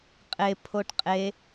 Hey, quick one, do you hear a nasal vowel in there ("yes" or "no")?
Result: no